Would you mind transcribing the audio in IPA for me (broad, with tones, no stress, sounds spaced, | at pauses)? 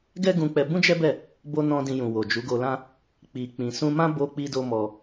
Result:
ɡ ɛ˦ ɡ ũ˧ k͡p ɛ˧ b ũ˦ d͡ʒ ɛ˦ b ɛ˦˨ | b o˧ n ɔ̃˧ d ĩ˧ j ũ˨ w o˨ d͡ʒ u˨˦ ɡ o˧ l ã˦ | k͡p i˨ k͡p ĩ˨ s ũ˧ m ã˦ b o˦ k͡p i˦ d o˦ m ɔ˧